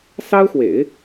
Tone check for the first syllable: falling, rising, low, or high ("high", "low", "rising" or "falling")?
high